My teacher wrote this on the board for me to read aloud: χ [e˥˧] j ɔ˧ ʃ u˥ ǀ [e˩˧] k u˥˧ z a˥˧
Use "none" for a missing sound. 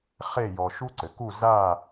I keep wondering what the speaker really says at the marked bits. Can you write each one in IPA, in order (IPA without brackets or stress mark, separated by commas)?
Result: e˥˧, ɘ˩˧